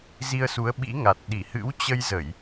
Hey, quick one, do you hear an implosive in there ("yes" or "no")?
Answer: yes